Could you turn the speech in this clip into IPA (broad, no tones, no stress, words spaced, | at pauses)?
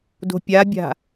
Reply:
do̤pʲabʲa̤